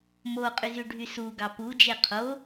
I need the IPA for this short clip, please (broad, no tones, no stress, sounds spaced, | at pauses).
m o qʼ y z y ɖʱ y s u ɡ ɑ p u d͡ʒ e qʰ o